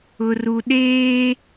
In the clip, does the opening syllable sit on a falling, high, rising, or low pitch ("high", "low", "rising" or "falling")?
low